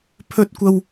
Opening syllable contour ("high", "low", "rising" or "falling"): high